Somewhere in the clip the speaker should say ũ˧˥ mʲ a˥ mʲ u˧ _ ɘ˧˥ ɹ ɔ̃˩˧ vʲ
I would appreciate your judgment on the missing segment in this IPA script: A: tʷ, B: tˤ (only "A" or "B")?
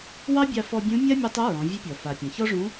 B